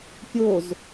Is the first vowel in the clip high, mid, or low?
mid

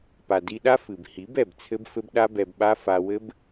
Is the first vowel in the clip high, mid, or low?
low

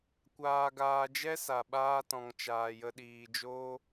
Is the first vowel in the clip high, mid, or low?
low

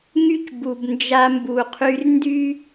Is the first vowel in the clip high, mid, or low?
high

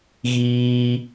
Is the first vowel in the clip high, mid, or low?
high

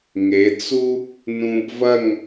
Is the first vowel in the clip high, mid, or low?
mid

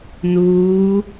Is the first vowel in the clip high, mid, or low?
high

